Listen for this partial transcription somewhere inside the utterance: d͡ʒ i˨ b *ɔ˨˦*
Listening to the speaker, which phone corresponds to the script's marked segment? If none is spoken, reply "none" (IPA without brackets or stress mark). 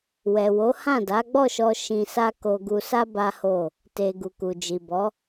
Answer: ɔ˨˦